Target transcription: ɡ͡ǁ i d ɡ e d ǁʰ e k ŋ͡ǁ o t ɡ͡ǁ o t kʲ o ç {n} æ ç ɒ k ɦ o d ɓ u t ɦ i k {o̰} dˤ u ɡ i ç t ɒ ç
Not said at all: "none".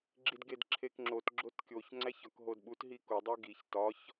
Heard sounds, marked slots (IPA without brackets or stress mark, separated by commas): ŋ͡ǀ, o